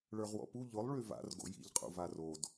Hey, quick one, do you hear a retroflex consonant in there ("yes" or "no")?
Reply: yes